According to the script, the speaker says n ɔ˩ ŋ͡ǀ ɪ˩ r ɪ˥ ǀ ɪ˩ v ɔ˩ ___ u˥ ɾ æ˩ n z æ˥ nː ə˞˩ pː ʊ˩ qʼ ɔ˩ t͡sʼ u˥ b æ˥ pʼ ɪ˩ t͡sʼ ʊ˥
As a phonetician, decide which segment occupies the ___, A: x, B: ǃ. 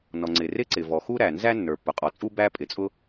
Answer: A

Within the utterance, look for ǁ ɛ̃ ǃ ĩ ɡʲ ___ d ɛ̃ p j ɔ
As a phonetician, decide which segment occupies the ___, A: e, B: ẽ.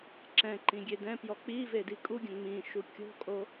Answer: A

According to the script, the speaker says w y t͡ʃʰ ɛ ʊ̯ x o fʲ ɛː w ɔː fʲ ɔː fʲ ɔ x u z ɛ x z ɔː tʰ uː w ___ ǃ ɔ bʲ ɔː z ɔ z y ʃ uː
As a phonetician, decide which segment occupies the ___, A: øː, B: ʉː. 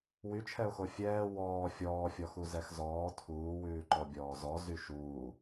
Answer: B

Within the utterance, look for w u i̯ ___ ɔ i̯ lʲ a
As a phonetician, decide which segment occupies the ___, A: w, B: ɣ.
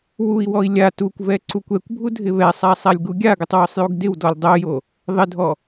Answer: A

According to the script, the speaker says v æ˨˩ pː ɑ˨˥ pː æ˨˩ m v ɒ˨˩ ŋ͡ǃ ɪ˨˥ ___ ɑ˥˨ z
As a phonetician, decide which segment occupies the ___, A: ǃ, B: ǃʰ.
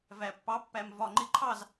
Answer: B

